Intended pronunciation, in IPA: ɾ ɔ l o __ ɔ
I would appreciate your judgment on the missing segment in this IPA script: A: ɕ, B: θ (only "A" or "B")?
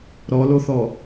B